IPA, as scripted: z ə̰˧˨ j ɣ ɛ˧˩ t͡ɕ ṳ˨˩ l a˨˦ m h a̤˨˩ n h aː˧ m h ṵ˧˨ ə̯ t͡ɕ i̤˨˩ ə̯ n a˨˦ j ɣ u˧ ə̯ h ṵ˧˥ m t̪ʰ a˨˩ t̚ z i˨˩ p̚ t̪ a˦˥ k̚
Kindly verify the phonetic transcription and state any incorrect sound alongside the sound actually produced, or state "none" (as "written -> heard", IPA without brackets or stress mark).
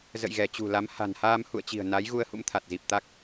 none